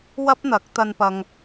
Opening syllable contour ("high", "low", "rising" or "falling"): high